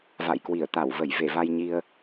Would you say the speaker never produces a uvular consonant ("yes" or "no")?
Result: yes